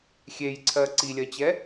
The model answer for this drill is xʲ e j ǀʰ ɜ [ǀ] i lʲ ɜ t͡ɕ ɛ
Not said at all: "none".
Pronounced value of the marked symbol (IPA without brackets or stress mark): ǀ